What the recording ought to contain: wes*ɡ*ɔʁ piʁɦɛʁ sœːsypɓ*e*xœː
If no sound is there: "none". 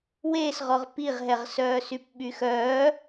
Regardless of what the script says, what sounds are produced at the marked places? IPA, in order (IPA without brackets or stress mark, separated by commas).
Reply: ʁ, y